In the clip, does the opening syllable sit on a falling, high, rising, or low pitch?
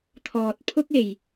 low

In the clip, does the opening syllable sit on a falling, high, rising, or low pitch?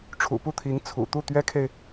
low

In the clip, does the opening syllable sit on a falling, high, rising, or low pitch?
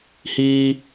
high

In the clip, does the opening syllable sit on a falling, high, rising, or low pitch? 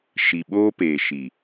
low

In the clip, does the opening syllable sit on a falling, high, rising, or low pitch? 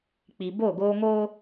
low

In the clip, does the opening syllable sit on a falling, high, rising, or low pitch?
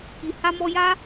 low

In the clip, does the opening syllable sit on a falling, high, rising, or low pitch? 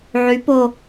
rising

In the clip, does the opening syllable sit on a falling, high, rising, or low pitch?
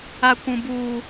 high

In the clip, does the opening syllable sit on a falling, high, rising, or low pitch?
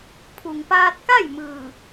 low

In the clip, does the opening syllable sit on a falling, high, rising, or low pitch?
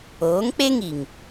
rising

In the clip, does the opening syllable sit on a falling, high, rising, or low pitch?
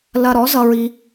high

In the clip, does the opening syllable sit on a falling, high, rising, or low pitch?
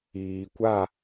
low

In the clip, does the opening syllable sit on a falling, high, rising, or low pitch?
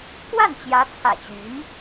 falling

